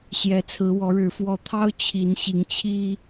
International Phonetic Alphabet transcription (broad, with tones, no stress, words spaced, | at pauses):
ɕjɛ˨˦t͡sʰɹ̩˨˦wɔ˨˦ɻɻ̩˨˦ fwɔ˨˩t̪ʰɑ˦ʊ̯ t͡ɕʰi˨˦nɕi˨˦ŋt͡ɕʰi˦